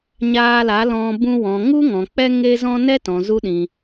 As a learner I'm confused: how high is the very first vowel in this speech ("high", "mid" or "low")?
low